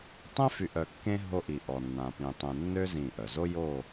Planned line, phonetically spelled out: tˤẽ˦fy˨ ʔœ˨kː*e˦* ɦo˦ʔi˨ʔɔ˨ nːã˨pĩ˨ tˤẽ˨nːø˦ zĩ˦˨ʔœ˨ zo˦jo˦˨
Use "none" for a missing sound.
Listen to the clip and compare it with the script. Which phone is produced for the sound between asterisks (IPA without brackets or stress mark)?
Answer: ẽ˦